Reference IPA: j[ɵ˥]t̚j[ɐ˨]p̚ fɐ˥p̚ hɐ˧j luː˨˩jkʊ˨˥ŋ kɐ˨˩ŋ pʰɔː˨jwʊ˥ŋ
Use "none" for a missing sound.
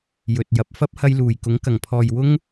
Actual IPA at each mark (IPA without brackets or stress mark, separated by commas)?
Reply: ɵ˨, ɐ˨˥